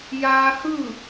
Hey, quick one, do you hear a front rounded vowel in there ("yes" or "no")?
no